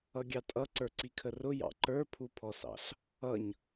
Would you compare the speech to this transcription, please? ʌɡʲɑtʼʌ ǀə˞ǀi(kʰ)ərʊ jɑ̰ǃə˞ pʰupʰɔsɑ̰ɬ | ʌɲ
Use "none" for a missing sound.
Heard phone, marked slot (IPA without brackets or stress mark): kʰ